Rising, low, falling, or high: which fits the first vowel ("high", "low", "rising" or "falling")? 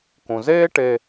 low